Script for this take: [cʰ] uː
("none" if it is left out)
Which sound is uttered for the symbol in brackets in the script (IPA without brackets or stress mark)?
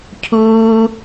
cʰ